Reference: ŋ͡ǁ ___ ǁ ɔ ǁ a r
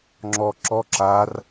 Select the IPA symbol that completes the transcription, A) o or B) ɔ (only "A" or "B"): B